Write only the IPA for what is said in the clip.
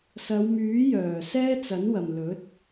sɐ˨˧wmyː˨˥jœː˨˩ sɛː˥t͡sɐ˨˥nwɐ˨mlɵ˨˥t̚

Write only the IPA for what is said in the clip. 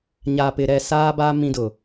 ɲaː˨pɪ˨ɾɛ˦˨ saː˦ba˦ mĩ˦dʊ˨

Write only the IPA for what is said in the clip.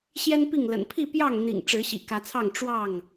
ɕjɛ˦npi˥˨ŋlə̰˨˩n pʰi˥˨ pjɑ˥˨ŋn̪ḭ˨˩ŋ ʈ͡ʂɻ̩˨˦ɕḭ˨˩kä˨˦t͡sʰɑ˥˨ŋ ʈ͡ʂwɑ˥˨ŋ

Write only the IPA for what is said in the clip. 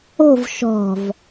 o̤v ʃɔ̤v

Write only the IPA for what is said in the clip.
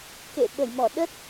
kḛ˧˨ɓə˧˩jmɔ˧˩ ɗə˦˥t̚

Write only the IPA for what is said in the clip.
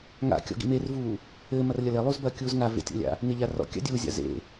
ŋa̰ kʲɔ̰ɡḭmervuː | ɘːmɐr lʲɐlelˠuːzbɐː kʲuːzŋa vḛtʲɔ̰lʲa̰ | neʎarɔ̰ kʲa̰dʲuː zʲa̰zḛ

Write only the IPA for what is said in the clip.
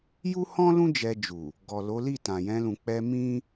ju˦hɔ̃˦lũ˦ d͡ʒɛ˧d͡ʒu˨ | ɡɔ˨lo˨˦ li˦˨tã˨jɛ̃˧lũ˨ k͡pɛ˧ mĩ˦

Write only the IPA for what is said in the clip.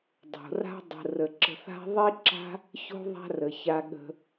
dˤo̤˩ra̤˦dˤə̤˨rə˩ ǁə̤˨θa̤˦ ðˤi˦ǁa̤˦ | ço̤˥ðˤa̤˦rə˩ ça˨ɠə̤˨

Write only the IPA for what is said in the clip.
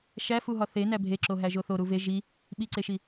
ʃæfuɦɒ θenæ bʱeǁoɦæʒo θoɾu ve ʒi | ɓiǀeʃi

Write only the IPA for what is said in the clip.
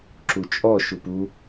ǁut͡ʃʼɔ ʃupu

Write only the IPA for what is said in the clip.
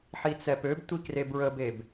ħit͡sɛpøbtʷi krebɹəbeb

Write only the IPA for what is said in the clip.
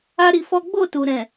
a˦ɾi˧fɔ˦ ɡ͡bo˦˨tu˨ ɾɛ̃˨

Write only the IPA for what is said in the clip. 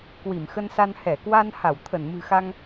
kwi˧˩mxə˧nsa˧n hɛ˧˩kwa˧n ha˧˩wt̪ʰə˧˩nmɨ̤˨˩xa˧ŋ

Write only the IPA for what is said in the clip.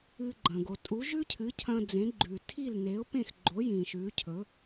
ɨ˧ɡ͡ǃɐ̃˩ ɡo˩tʼu˩˥ʒʉ˥cʰɨ˩˥ cʰɐ̃˧d͡zẽ˩˥ɡ͡ǃʉ˩ tʰi˥˩lne˩˥ʊ̯pẽ˥˩x ɡ͡ǃo˩˥ jĩː˩ʃʉː˩˥cʰɵ˩˥

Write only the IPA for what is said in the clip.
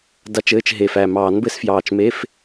da˦˥t͡ʃɘː˧˥˧t͡ʃ ɦe˨˩fæ˨˩ mɑː˨˩˦nbɘ˦˥sfjɑː˨˩t͡ʃme˧˥˧f

